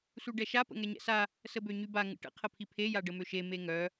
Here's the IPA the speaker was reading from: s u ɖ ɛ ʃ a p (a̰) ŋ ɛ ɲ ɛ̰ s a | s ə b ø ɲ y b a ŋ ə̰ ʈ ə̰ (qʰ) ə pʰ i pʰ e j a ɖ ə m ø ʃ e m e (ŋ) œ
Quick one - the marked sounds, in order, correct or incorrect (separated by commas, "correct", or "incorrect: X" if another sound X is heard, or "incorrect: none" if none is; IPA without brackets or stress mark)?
incorrect: ə̰, correct, correct